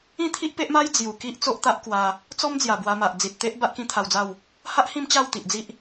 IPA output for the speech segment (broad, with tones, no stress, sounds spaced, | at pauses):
ĩ˥˧ t̪ʰ i˦ ʔ p e˦ ʔ m a˦ j d͡z j u˨˩ k i˦ ʔ t͡s o˦ ʔ t̪ a˦ ʔ k w a˧ | t͡s ɔ˦ m d͡z j a˨˩ b w a˧ m a˨ ʔ d͡z i˨ t̚ t̪ e˦ ʔ b a˦ ʔ k ĩ˦ t̪ʰ a˧ w d͡z a˥˧ w | h a˦ ʔ h ĩ˥˧ m t͡ɕ a˥˧ w t̪ i˨ ʔ d͡z i˦ ʔ